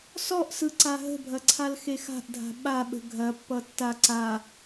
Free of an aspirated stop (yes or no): no